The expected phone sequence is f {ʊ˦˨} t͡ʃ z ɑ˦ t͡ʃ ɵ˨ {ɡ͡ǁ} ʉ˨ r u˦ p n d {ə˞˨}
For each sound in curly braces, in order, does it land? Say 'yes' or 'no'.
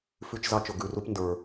no, no, yes

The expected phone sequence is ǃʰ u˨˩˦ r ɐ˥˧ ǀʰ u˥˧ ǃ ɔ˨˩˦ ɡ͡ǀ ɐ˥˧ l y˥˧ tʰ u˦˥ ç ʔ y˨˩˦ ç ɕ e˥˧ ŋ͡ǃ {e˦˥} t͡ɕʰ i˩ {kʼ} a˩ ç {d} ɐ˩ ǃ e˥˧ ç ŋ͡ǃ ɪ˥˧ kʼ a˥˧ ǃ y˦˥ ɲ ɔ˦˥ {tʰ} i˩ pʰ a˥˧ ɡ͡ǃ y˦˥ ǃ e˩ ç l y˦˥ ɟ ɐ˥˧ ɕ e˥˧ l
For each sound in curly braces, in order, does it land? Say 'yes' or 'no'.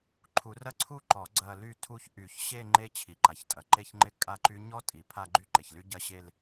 yes, no, no, no

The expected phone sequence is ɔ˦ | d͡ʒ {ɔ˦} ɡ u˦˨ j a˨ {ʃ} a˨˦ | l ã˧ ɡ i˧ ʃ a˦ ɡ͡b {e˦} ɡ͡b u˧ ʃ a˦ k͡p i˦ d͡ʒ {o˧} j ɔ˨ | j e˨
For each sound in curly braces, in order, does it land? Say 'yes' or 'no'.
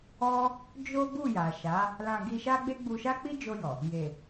no, yes, yes, yes

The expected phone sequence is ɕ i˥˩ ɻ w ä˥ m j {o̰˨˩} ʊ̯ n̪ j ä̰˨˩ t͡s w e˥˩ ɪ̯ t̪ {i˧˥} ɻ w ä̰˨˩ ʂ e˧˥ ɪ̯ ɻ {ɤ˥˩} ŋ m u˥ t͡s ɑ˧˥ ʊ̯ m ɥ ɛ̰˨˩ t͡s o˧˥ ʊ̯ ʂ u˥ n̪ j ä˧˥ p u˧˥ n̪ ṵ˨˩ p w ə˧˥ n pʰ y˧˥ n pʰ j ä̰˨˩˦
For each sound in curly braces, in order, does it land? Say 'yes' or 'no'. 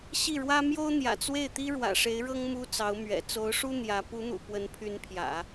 no, no, no

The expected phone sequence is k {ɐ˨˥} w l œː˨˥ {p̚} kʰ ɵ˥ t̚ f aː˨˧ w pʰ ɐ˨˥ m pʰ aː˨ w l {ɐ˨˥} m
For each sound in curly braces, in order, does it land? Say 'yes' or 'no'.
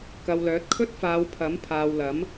no, no, yes

